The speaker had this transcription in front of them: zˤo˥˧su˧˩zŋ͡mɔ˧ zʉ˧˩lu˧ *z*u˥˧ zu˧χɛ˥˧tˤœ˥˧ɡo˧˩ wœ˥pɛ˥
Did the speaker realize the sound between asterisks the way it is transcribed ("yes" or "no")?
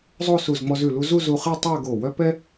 yes